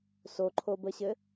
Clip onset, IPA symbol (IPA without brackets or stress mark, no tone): s